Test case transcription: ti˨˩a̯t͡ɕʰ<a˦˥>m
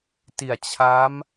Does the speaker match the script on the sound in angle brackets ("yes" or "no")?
yes